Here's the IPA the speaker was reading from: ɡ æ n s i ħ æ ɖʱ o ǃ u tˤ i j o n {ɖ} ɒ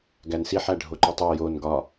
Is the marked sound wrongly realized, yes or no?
yes